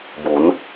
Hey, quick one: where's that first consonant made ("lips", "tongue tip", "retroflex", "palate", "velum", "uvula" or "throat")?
lips